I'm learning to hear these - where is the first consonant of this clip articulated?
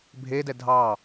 lips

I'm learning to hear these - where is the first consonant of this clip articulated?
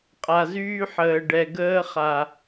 uvula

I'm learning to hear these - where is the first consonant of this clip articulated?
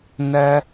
tongue tip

